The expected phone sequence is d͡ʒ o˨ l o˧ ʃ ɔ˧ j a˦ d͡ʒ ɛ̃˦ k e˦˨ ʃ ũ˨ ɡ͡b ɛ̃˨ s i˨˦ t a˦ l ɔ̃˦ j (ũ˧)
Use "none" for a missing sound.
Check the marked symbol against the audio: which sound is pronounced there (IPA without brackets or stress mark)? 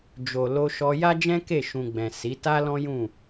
ũ˦˨